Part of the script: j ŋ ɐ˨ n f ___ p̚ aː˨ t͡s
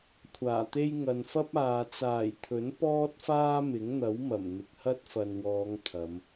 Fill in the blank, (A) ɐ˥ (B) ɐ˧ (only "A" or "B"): A